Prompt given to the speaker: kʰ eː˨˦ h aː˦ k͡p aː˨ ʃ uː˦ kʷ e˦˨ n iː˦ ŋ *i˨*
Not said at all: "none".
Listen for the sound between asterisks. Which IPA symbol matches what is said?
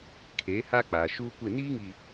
i˨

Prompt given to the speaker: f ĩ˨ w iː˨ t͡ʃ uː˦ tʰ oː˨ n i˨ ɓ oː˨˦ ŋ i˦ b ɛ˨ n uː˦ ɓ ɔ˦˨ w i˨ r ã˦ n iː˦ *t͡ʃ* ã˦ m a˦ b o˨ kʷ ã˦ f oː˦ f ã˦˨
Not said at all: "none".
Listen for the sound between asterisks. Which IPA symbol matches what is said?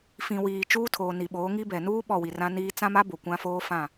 t͡s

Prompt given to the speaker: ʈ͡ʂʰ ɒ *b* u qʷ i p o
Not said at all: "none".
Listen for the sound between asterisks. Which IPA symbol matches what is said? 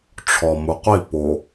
m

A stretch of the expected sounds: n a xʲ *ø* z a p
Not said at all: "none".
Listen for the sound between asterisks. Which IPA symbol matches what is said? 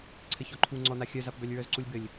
œ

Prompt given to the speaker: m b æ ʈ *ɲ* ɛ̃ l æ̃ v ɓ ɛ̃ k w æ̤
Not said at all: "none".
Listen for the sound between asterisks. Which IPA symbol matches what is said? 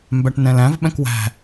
n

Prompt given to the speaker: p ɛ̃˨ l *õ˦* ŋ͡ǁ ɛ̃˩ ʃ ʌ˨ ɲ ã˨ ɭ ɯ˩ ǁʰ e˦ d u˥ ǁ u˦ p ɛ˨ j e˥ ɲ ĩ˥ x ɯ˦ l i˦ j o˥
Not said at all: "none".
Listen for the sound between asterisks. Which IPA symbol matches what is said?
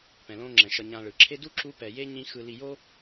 õ˦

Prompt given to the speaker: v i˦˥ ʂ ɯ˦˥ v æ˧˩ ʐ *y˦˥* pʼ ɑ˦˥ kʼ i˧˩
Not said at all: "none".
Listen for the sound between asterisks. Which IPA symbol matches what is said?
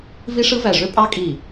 ø˦˥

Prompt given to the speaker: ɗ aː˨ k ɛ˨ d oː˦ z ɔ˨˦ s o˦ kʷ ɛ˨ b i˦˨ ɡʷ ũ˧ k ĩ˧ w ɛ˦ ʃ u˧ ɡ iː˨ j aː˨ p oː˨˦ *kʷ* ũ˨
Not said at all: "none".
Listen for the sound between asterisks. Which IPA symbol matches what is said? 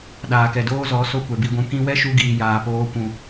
kʷ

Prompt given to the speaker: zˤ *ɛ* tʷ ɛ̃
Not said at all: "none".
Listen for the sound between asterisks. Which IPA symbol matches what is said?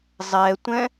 ɛ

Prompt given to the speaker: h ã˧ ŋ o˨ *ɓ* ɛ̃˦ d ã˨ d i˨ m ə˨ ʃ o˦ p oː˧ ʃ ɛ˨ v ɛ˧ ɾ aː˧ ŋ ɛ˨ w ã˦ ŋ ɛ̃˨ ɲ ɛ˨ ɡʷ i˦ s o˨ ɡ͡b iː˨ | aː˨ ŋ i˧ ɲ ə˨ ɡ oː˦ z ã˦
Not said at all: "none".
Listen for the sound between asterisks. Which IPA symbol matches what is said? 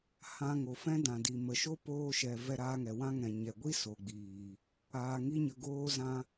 f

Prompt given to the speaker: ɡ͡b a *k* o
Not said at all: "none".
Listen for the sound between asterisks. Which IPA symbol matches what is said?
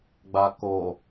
k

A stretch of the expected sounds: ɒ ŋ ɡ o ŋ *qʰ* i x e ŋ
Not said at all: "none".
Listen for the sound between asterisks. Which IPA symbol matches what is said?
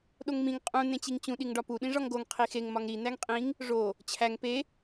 qʰ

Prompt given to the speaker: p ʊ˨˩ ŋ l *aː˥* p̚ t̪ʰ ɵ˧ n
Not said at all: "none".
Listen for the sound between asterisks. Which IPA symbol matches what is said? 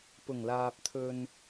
aː˨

